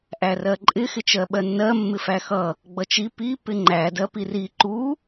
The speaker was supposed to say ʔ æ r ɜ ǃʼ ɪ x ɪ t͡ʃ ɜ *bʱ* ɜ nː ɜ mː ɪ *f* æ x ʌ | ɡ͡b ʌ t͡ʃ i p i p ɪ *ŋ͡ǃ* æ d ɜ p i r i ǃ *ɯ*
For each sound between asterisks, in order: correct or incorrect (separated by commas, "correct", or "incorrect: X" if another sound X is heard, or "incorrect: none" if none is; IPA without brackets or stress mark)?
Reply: incorrect: ɓ, correct, correct, incorrect: u